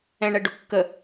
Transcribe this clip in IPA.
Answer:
ɛ̃ɳɛ ɖʊkːə

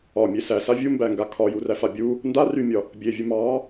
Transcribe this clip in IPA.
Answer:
ɒmʲe sæsa vʲumbæŋɡa kʰɒjuræfa bʲu | nda rymʲɒ | bʲevʲu mɑ

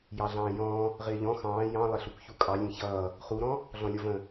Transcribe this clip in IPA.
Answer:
jɑɮɑ̃ːjɔ̃ː | ʁɪːʎɔ̃ xɑ̃ː jɑ̃ lˠɪɬukçukʼɑ lʲɛ̃çʌː | χuɾɔ̃ | ɮɔ̃lʲɔvə̃

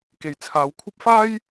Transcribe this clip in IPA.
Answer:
ke˨jt͡sʰaː˨˧wkʷʰɐ˥p̚ faː˥j

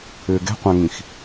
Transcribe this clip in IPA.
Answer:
ʏːɡɛ̤qʷãŋĩx

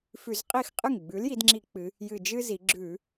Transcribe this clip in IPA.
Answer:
fʉ˧˩˧z qʼi˥˩xqʼɨ˥˩ŋ ɡ͡bʉ˩˥l ji˩˧dŋ͡ǁi˧˩˧ k͡pɨ˩˧ | jɨ˨˩ d͡ʒɨ˥zi˩˧ ɡ͡ǁʉ˧˩˧

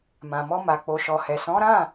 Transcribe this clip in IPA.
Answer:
mã˨mɔ˧ ma˨k͡po˨ʃɔ˨hɛ˨ sɔ̃˨˦ɾã˦˨

